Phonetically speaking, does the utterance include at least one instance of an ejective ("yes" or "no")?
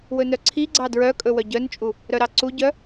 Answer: yes